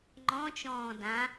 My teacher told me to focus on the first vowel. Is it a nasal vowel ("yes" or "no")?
yes